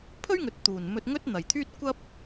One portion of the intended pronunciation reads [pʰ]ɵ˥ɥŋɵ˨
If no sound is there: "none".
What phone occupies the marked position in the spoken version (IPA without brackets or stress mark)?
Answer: pʰ